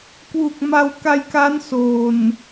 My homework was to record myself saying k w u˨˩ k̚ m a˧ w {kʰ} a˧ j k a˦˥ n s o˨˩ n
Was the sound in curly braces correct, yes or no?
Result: no